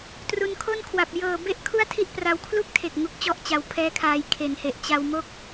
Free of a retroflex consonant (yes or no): yes